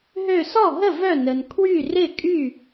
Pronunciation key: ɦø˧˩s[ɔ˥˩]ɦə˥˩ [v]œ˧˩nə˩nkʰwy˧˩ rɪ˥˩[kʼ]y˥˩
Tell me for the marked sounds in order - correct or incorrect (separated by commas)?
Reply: correct, correct, correct